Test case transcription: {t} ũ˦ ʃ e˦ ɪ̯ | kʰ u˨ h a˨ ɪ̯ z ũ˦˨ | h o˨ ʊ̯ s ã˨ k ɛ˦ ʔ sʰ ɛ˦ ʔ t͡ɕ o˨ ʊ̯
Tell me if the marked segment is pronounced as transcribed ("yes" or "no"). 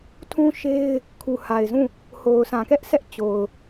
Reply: no